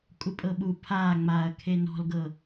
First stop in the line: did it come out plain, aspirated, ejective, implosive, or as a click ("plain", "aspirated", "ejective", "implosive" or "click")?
ejective